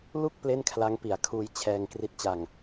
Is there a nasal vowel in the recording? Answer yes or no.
no